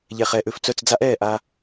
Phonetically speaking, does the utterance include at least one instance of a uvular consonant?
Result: yes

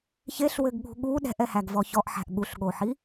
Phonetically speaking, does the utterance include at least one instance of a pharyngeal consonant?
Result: yes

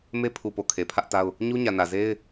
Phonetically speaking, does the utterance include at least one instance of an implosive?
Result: no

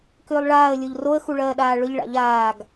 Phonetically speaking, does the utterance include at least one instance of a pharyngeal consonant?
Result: no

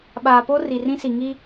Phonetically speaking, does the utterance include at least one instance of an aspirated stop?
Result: no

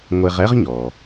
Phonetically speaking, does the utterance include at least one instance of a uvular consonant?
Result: yes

